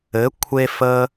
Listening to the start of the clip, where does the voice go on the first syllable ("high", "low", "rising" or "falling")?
rising